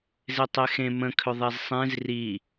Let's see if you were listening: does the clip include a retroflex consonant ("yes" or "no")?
no